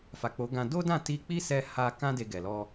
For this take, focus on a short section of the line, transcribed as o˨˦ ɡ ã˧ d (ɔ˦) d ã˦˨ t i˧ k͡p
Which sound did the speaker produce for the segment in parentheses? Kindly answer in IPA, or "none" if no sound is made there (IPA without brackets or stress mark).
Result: o˦